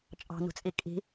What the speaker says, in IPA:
t͡ʃʼ ɑ̤ n ṳ t͡sʼ i kʼ i̤

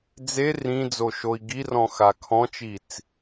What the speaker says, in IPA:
d͡z e r ĩ d͡z o ʃ o i̯ ɡ i r ɔ̃ x a kʰ ɔ̃ t͡ʃ i t͡s

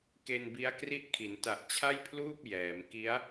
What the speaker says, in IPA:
k e˧ n b i˦˥ a̯ k r i˥˩ ʔ kʰ i˩˦ n t a˨˩ ʔ t͡ɕʰ a˥˩ j pʰ l uː˥˩ p̚ j ɛː˩˦ m k i˦˥ a̯

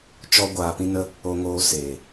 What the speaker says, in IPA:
t͡ʃ ɔ˦ ɡʷ aː˧ p ĩ˦ n ə˦ | o˧ ŋ oː˧ s eː˨

